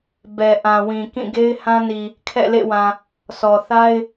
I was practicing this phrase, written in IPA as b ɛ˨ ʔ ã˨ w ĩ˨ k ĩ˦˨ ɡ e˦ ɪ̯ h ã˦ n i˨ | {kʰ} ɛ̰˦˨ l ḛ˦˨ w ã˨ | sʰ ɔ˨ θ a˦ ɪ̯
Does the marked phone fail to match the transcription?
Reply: no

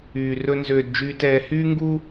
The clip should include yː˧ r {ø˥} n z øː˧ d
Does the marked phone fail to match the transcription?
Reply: yes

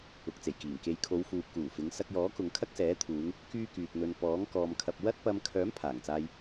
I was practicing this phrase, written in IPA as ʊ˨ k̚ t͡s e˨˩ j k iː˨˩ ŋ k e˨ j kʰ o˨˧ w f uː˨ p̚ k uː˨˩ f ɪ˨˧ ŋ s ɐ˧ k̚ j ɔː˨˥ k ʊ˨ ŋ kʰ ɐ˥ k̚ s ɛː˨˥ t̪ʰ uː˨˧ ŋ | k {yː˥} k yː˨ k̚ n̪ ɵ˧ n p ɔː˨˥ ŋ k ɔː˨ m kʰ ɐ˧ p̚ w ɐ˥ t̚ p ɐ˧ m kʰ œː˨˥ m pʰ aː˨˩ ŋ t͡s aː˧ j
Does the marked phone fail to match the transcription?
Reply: no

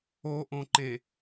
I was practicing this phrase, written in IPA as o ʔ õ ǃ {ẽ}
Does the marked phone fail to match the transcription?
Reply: no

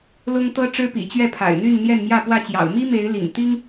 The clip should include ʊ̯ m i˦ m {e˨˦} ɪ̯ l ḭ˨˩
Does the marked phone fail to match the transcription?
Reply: no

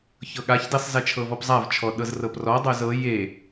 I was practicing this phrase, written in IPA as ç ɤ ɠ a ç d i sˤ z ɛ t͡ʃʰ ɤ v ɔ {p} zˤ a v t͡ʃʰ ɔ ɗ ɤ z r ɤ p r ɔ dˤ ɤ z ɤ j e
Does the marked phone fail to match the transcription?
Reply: no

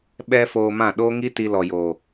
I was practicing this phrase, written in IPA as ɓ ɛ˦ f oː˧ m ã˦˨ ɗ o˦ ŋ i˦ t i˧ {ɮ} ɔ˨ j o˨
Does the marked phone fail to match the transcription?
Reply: yes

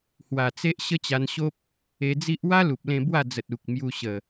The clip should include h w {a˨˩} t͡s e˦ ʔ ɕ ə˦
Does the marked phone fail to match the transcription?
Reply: no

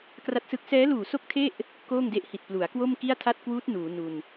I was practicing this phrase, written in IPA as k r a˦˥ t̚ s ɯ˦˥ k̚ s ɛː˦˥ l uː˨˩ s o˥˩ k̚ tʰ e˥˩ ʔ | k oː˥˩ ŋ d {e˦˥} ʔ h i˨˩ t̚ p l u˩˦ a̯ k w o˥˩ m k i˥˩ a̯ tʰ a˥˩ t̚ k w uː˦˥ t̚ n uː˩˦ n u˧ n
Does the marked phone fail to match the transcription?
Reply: no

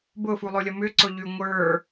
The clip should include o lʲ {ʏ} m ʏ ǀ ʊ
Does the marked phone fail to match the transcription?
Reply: yes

